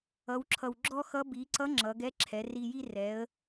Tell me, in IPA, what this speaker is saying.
ʌ˩˧ w ǁʰ ʌ˩ w ɡ͡ǁ ɔ˥ x ʌ˧˥ b i˩˧ ǀ ʌ˧˥ ŋ͡ǁ ʌ˩˧ ɡ ɛ˧˥ ǁʰ ɛ˩˧ r i˧ j i˥ r ɛ˩˧ ə̯

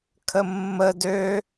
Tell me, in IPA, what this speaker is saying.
kʰ ə mː ə d ø

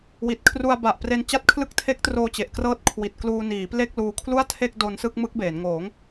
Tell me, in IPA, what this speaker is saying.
w i˨˩ t̚ kʰ r u˧ a̯ b a˨˩ ʔ p r e˧ n t͡ɕ a˦˥ t̚ kʰ l ɯ˦˥ k̚ tʰ e˦˥ k̚ t r oː˧ t͡ɕ e˨˩ ʔ k r ɤː˥˩ t̚ kʰ w i˨˩ t̚ k l uː˧ n iː˩˦ p l e˥˩ k̚ l uː˧ kʰ l u˥˩ a̯ tʰ e˥˩ k̚ d o˧ n s ɯ˥˩ k̚ m ɯ˦˥ k̚ b eː˩˦ n ŋ oː˩˦ ŋ

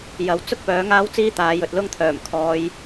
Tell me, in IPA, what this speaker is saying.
j ɐ˨˧ w t͡s ʊ˥ k̚ p œː˨˥ ŋ aː˥ w t͡s iː˥ t̪ aː˨˧ j ɵ˨ t̚ l ʊ˥ ŋ t̪ʰ œː˨˩ m kʰ ɔː˨˧ j

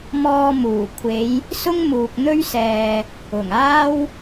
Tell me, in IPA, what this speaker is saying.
m ɔː˧ m uː˨˩ kʷʰ e˨˧ j | s ʊ˥ ŋ m uː˨ k̚ n̪ ɵ˥ ɥ s ɛː˨ | ʊ˨˩ ŋ aː˥ w

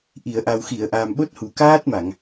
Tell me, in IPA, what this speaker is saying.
ʔ i˨˩˨ ə̯ ʔ a˨˩ w x i˨˩˨ ə̯ ʔ aː˨˩ m ɓ o˦˥ t̚ h u˨˩ k aː˦˥ t̚ m a˨˩˨ ŋ

